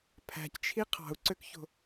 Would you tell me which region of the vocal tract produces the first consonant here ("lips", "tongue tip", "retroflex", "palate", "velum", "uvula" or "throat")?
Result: lips